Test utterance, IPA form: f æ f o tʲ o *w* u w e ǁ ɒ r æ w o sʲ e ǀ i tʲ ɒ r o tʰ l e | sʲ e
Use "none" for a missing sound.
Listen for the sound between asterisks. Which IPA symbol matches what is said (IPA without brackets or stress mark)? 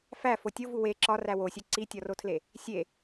v